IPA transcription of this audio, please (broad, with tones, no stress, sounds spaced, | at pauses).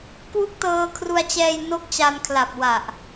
k w u˥˩ k̚ t ɤː˧ kʰ r u˧ a̯ t͡ɕ ɛː˧ j n o˥˩ k̚ t͡ɕ a˧ n kʰ l a˨˩ p̚ w a˨˩ ʔ